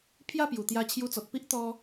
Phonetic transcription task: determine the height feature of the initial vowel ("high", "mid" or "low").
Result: low